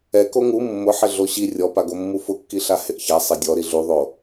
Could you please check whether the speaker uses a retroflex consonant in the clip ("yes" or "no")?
no